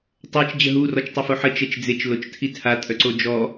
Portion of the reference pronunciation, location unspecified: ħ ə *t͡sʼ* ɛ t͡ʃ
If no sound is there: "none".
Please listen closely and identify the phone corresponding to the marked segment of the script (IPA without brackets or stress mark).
t͡ʃ